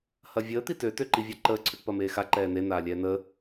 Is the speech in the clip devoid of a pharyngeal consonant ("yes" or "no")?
yes